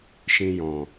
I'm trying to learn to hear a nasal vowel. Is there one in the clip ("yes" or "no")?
yes